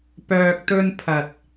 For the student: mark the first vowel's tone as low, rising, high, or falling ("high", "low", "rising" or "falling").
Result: low